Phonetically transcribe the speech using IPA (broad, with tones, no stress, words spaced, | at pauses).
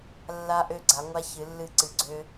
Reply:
lːa˦ʔø˦ɡ͡ǀa˨˦ŋʷa˦ çɨ˨˦lːɨ˦ǀɨ˨˦ɡ͡ǀø˦